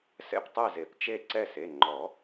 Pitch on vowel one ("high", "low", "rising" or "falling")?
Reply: falling